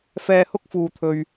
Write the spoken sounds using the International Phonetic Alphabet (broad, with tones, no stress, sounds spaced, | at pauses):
f ɛː˧ h ʊ˥ k̚ f uː˨ t̪ʰ ɵ˨ ɥ